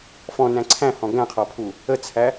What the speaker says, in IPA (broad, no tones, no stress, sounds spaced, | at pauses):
f ɔ̃ n æ̃ ǀʰ æ̃ h ɔ̃ ɡ æ̃ qʰ ɔ pʰ u | ə t͡sʰ æ